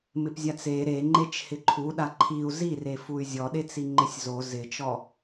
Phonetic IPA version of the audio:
m ɪ p zʲ a t͡s e ɾ e ŋ͡ǃ e t͡ʃ h ɪ ǃʰ u ɗ a ǃʰ i u̯ z i r e f u y̯ zʲ ɔ ɗ e t͡s i ŋ͡ǃ ɪ sʲ z o z ɪ t͡ʃ ɔ

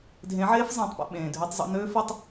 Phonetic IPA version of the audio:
dʱ ẽ˨˦ ʕ eː˦ f zˤ ẽː˨ tˤ p ɛ̰˨ ɓ ẽː˨ dʱ ø˦ tˤ zˤ ɛ̰˦ n øː˦ f ə˦ tˤ

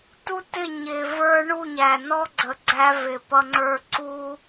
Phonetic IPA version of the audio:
t u˦ t ɪ˦˨ ɲ ɪ˨ v ə˞˦ ɳ u˦˨ ɲ æ˨ n ɔ˦ ɡ͡ǀ ə˨ ɡ͡ǀ æ˦ v ɪ˨ p ʌ˦ ŋ͡ǀ ə˞˦ ǀ u˦

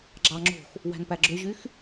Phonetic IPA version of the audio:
ɡ͡ǁ ɑ ŋ͡ǁ o̤ x | w æ̤ n p æ ɡ͡ǁ ø ʑ y x

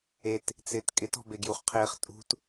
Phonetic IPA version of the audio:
e t | t͡s ɪː t kʼ ɪ t ɔ̤ b e ɡ j u χ qʰ ɪː χ tʼ ṳ t

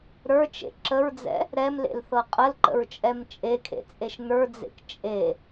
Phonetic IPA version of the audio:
ɾ ə˞ t͡ʃ ḛ ǁ ə ɹ d͡z ɛ̰ | ɾ ɛ m l ḛ l θ ɤ qʼ ə l ǃ ə̰ ɹ t͡ʃʼ ɛ m t͡ʃʼ e kʰ ḛ t͡sʼ e ʃ n ə˞ d͡z ḛ k t͡ʃʼ e

